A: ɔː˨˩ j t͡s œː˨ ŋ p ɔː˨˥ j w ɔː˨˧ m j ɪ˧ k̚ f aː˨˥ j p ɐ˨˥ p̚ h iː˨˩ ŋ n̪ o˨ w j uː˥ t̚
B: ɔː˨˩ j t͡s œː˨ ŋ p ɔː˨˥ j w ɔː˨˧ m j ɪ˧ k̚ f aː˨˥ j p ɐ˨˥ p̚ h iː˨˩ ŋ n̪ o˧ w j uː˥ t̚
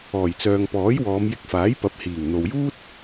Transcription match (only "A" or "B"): A